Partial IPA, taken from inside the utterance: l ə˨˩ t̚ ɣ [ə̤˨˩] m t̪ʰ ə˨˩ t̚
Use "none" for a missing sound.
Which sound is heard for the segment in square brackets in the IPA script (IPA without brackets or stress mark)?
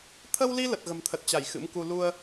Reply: ə̤˨˩